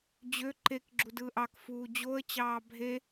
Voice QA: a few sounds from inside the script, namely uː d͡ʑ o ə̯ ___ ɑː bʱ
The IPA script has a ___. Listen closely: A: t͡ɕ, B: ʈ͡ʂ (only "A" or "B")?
A